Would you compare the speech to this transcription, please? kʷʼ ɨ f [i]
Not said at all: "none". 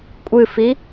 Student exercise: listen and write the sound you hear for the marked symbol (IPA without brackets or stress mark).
i